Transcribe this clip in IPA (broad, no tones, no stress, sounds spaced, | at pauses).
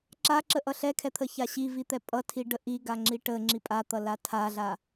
ǁ a ǁ ə ʔ ʌ ɬ ɛ kʰ ɛ t̪ʰ ə ç a ɕ i v i t̪ ɛ pʼ ʌ tʰ i ɖ ə ʔ i ɡ a ŋ͡ǁ i ʈ ə ŋ͡ǁ i pʼ a t̪ ʌ l a tʰ a ɮ a